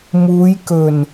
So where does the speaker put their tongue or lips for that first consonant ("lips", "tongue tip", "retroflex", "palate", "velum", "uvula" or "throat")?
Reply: lips